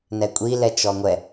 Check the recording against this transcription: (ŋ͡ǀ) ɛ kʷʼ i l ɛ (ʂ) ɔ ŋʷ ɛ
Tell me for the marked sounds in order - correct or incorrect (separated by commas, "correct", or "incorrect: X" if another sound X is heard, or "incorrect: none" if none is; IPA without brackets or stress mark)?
incorrect: n, incorrect: t͡ʃ